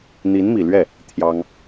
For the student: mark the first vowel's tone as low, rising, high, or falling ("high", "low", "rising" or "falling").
rising